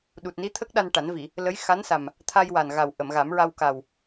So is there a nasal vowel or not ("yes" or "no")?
no